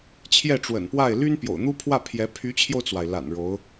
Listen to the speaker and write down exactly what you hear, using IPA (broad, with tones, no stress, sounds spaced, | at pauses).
t͡ɕʰ j ɛ˥˩ ʈ͡ʂ w ə̰˨˩ n p w a˥˩ ɪ̯ l y˥ n p j o̰˨˩ ʊ̯ n̪ u˥ pʰ w ä˥˩ pʰ j ɛ˧˥ pʰ y˧˥ t͡ɕʰ j o˧ ʊ̯ t͡s w a˩ ɪ̯ l a̰˨˩ n ɻ o˧˥ ʊ̯